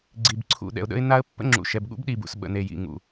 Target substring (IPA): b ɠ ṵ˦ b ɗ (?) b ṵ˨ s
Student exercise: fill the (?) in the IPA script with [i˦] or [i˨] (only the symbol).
i˨